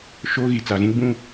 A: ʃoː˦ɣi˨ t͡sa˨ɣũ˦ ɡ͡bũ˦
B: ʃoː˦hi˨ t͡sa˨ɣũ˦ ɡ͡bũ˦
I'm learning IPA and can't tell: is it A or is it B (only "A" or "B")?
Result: A